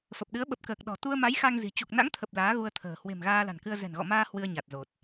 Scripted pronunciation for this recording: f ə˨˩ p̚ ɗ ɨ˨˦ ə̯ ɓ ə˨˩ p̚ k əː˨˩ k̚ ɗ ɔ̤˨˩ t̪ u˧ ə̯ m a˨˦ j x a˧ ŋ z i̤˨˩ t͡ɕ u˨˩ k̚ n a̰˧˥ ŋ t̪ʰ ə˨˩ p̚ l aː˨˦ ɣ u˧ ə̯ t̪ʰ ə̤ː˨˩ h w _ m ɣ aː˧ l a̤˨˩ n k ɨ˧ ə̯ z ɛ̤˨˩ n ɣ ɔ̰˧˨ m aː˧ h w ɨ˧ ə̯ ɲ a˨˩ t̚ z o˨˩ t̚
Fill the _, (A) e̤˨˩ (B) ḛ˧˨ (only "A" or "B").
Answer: A